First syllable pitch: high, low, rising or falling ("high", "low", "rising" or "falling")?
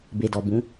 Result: low